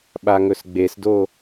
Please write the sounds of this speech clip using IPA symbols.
ɓaŋɵsɡ͡besdo

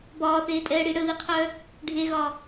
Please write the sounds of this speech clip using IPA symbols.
bɒːθeːtʼɛːɽi ɽəðiqʰœ | ɖʱeɣɒ

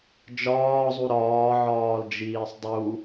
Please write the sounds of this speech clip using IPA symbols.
d͡ʒɒːzˤu ɾɒːʕɒːld͡ʒiːsˤ dˤu

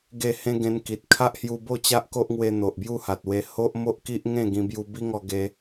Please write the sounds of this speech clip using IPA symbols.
ɡe˥˧hẽ˦ ɡẽ˧nki˨t̚ kʰa˦ʔhju˧bo˥˧ t͡ɕa˦ʔko˦ʔŋwe˧ n̪o˨ʔbju˥˧ha˨t̚we˧ ho˦ʔmo˦ʔki˦ʔ ŋẽ˥˧ɡĩ˧bju˧ bi˦ŋɔ˧ ɡe˧

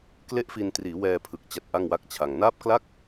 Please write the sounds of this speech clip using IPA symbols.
kle˥˩ʔfi˧n triː˩˦wɛː˧pʰɯ˨˩k̚ t͡ɕa˦˥t̚ʔa˥˩ŋwa˥˩k̚t͡ɕʰa˧ŋ naː˦˥p̚kla˥˩k̚

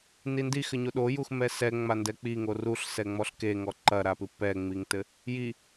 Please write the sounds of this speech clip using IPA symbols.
nindixɘ ɲoɗojux mɛsɛ ŋ͡mandɛk͡piŋo ruɬ sɛŋ͡mɔɬke ŋɔǃɐɾapɨ pɛŋ͡miŋtɘ | ji

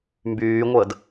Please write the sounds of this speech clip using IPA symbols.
mbyːŋʷəːd

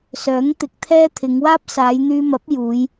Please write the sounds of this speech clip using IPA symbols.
sœː˨˥ŋt̪ɪ˨˥k̚t̪ʰɛː˥t̪ʰɪ˨˧ŋ waː˥p̚saː˨˧jn̪yː˧mɐ˨˥p̚ juː˨˧j

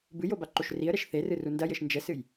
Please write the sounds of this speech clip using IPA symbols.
bɨjo baǃoʃriə̯ɾɛʃ θerɨ rundɐjɘʃ nd͡ʒɛsɨj

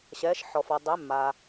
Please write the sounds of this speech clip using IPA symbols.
ɕɛː˩˧ʃħɔ˩fɔ˩ dˤe˩˧mːa˩

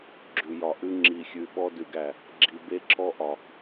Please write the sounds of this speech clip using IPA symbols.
ɡ͡ǁʉ˨jɒ˨ʔʉ˦ ŋ͡ǁi˨xʲʉ˨ ɓɔ˦dʉ˨ɡæ˨ | ɡ͡ǁi˨be˦ǁʰɔ˦ ʔɒ˨

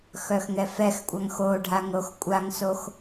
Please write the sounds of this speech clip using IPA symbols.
xœxŋɛfɛxkʷʼaŋ xo ɖʱaŋɾoxkʷʼaŋsox

